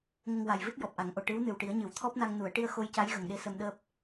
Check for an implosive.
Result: present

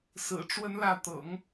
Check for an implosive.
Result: absent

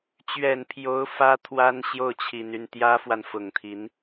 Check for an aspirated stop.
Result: present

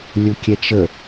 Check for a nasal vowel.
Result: absent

